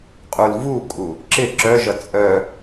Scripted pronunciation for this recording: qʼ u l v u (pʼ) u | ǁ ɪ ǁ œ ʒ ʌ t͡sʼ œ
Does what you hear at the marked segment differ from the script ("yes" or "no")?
yes